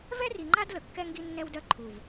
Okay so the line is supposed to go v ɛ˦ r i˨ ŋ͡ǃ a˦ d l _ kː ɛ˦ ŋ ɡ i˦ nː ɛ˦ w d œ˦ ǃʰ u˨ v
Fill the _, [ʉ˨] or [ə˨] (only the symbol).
ə˨